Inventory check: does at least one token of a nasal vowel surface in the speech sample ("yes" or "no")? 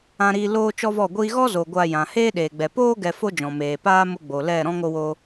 yes